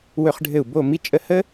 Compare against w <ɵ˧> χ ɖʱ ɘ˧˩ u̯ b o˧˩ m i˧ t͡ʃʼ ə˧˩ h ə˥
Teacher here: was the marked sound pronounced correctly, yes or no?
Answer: yes